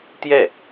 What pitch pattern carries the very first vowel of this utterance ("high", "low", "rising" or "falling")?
falling